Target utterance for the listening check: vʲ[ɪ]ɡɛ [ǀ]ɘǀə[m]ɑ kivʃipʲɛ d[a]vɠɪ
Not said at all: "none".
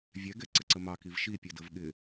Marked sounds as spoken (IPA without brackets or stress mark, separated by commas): ɛ, ǀ, m, ə